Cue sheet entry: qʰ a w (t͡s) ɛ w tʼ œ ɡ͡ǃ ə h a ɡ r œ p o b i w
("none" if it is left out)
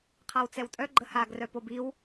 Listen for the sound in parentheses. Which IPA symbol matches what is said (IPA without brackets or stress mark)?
t͡s